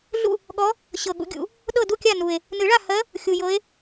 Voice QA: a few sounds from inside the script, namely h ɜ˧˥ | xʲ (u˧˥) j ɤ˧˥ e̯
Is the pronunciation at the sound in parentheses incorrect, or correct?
incorrect